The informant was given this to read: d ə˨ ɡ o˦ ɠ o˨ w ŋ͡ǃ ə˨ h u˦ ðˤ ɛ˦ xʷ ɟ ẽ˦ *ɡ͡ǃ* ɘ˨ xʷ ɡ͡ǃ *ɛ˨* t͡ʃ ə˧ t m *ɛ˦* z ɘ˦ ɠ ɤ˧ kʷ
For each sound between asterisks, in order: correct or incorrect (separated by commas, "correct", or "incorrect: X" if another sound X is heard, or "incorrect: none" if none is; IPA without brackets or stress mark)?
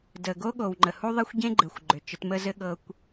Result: correct, incorrect: ʏ˨, incorrect: ə˦